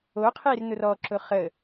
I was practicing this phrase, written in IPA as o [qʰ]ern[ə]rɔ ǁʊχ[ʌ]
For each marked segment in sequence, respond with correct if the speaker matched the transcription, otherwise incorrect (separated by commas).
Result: correct, incorrect, incorrect